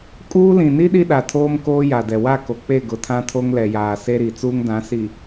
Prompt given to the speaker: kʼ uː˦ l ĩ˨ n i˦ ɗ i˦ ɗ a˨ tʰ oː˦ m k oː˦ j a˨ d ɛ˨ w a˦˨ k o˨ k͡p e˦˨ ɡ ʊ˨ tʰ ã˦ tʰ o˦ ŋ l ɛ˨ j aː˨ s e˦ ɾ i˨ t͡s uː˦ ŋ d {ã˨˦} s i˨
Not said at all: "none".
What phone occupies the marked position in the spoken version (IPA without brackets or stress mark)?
ã˨˦